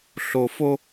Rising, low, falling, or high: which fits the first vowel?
low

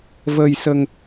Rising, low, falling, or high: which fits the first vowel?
low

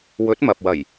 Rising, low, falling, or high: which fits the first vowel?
rising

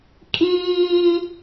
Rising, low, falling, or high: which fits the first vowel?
high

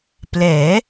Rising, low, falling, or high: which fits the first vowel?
rising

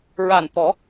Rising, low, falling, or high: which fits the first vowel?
low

